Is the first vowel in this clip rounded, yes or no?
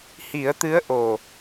no